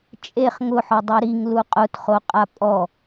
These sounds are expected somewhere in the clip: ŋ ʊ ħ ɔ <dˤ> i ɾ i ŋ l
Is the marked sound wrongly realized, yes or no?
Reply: no